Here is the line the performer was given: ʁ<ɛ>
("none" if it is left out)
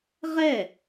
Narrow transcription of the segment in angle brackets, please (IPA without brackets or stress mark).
ɛ